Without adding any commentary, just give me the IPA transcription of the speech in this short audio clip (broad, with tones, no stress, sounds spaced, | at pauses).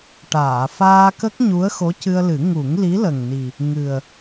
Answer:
ʈ aː˨˩˨ f aː˧ k ə˦˥ k̚ ɲ u˧˥ ə̯ x o˧˥ c ɨ˧ ə̯ l ɨ˨˩˦ ŋ u˨˩˦ ŋ l i˧˥ l ə˨˩ ŋ n i˨˩ | ŋ ɨ˨˩ ə̯